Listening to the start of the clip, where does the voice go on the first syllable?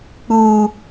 high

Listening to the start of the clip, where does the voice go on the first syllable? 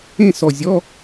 falling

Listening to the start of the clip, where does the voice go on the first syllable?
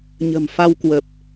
low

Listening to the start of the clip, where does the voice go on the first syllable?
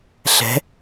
rising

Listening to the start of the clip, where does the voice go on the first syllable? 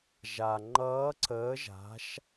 low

